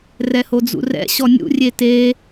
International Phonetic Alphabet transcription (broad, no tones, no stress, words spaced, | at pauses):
rɛhod͡zṵrɛ̰ ɕɔnʲṵ rʲete